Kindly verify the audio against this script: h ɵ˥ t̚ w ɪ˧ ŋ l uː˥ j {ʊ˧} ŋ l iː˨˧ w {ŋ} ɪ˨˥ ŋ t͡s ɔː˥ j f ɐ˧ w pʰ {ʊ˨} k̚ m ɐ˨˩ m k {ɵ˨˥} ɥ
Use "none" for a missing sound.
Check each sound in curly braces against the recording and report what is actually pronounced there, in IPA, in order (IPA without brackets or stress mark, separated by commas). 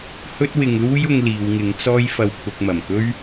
ʊ˧, ŋ, ʊ˧, ɵ˥